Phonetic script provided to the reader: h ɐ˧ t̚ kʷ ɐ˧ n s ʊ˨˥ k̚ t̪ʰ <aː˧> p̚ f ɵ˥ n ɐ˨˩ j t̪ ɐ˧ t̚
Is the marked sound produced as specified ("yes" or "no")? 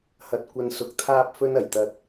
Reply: no